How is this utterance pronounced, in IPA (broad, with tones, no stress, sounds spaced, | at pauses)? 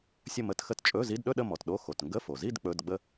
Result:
sʲ ə˥˧ m ə˧˥˧ t x ə˥˧ t t͡ʃʼ ɵ˧˥˧ z i˧˥˧ d ɗ ɵ˥˧ ɗ ə˥˧ m ɔ˩ t ɗ o˧˥˧ x o˩ t ŋ ɡ ə˧˥˧ f o˩ z i˥˧ d k͡p ɵ˧˥˧ d ɡ͡b ə˥˧